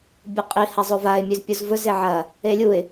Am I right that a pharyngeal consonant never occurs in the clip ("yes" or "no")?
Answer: no